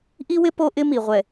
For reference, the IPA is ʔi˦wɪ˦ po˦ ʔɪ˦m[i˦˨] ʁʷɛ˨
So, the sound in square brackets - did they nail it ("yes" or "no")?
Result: no